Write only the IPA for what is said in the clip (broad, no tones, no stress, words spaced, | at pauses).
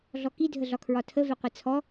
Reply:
ɮɔki dʱəɮɒkʰɹɒtʰə vɛqʷɛt͡sʰɔ